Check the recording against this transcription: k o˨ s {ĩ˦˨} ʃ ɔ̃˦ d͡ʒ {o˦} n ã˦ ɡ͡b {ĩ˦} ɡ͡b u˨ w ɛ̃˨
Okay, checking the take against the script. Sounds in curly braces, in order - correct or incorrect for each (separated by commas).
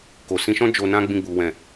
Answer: incorrect, incorrect, incorrect